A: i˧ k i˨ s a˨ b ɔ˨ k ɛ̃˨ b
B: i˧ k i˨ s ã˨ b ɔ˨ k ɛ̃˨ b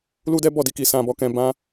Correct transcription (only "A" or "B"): B